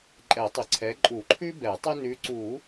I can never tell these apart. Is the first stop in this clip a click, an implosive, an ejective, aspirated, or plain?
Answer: click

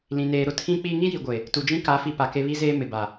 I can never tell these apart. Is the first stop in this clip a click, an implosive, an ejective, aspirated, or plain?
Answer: aspirated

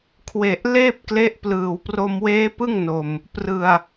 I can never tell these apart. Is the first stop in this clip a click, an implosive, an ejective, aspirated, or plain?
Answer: aspirated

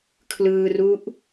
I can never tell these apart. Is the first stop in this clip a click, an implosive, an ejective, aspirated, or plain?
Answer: aspirated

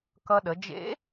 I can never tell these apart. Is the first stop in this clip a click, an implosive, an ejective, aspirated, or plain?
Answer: plain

